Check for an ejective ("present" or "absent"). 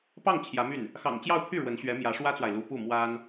absent